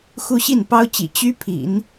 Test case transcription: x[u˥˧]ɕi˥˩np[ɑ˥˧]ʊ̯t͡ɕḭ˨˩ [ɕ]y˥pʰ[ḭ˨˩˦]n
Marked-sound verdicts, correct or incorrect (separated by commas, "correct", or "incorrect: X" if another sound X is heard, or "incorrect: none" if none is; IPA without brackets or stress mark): correct, incorrect: ɑ˥, incorrect: t͡ɕ, correct